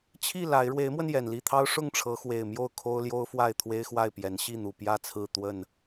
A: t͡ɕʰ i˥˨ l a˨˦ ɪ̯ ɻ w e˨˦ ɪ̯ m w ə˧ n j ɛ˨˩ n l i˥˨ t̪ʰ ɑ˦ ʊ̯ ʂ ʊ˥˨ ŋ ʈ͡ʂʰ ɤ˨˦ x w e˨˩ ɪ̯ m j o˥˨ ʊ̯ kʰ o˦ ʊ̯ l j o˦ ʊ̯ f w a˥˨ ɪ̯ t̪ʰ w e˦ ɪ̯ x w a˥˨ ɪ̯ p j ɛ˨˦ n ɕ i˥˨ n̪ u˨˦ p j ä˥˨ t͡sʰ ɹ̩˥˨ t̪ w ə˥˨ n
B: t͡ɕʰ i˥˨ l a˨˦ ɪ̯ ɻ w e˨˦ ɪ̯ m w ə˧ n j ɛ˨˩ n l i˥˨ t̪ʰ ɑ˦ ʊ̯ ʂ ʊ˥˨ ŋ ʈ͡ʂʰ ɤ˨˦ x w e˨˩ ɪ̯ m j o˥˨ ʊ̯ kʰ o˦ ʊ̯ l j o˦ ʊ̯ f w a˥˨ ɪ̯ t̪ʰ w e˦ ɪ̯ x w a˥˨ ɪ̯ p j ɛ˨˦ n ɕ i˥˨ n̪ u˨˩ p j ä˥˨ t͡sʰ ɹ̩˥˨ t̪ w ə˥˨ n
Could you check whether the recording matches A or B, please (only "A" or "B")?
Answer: B